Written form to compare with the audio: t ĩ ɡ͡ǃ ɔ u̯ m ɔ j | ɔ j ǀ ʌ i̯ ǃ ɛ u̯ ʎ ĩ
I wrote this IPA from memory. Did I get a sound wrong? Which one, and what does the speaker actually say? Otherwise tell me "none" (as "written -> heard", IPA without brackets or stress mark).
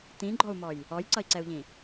ǃ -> ǀ